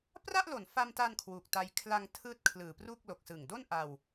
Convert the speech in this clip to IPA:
p r a˥˩ ʔ l o˨˩ n f a˧ m t a˧ n kʰ w u˨˩ k̚ t a˧ j kʰ l a˧ ŋ tʰ ɯː˦˥ t̚ kʰ l ɯː˨˩ p r u˥˩ k̚ l o˨˩ k̚ s ɯ˨˩ ŋ d o˥˩ n ʔ a˧ w

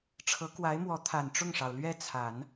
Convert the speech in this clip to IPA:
ʈ͡ʂʰ ɤ˧˥ k w a˧˥ ɪ̯ m w ɔ˧˥ t̪ʰ a˨˩ n ʈ͡ʂ ʊ˥˩ ŋ ʂ ɑ˩ ʊ̯ l ɥ ɛ˥˩ t͡sʰ a˨˩˦ n

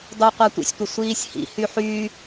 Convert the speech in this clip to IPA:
dˤ o qʷ a tʷ ḭ sʲ tʷ ə sʷ iː sʲ h ḭ h y ħ y

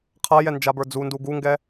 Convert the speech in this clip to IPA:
qʰ a j ɛ n d͡ʒ a b ə˞ d͡z u n d u ɡ u ŋ ɡ ɛ

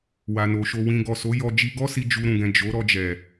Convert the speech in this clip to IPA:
w a˨ n o˨ ʃ o˧ w ĩ˧ ɡ ɔ˨ s o˨˦ j ɔ˧ d͡ʒ i˧ ɡ ɔ˦ s i˧ d͡ʒ u˧ ɾ ũ˨ ɡ ɛ̃˨ d͡ʒ o˨˦ ɾ ɔ˧ d͡ʒ ɛ˨

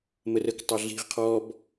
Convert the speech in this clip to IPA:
m ə r ə k tˤ ɑ ɮ i̤ ʁ qʰ ɔ b

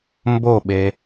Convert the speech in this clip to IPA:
m b o ɓ e

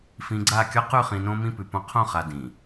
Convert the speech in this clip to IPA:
f ĩ˨ ɡ͡ǀ a˦˨ kʲ ɒ˦ q ʉ˦˨ χ ĩ˨ n õ˦ m ĩ˦ p ʉ˨ p õ˦ qʰ õ˦˨ χ a˨ d ĩ˨

